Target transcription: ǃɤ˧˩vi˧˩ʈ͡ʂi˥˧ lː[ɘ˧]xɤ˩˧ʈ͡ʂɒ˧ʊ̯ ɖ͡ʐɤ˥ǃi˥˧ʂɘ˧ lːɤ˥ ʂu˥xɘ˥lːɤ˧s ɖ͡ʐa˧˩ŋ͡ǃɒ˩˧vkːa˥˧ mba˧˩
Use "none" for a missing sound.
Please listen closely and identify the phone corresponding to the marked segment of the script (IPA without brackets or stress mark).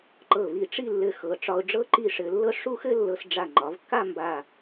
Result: ɘ˧